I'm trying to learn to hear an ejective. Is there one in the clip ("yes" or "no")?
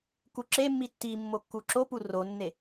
no